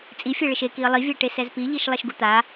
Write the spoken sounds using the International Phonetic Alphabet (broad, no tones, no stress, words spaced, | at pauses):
t͡sʼifʲɛɭɪʃ ekiə̯ lˠivʲɛʈe sɛzpiʎiʃ lˠɛʃɡut̪a